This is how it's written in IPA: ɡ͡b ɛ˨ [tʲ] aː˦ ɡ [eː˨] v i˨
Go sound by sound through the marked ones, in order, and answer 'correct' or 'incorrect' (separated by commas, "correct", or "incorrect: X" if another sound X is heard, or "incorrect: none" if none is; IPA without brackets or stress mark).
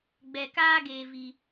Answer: incorrect: k, correct